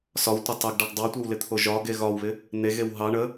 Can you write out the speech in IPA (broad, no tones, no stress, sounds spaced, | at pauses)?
s ɒ w tʷ ə tˤ ɛ ɡ ɖ ɒ ɡ dˤ ɑ tʷ ɛ w l ɪ t̪ʰ o ʒ ɒ ɡ e ɣ ɒ w β ɪ | n̪ e ɣ e w ɦ ɑ ɳ ə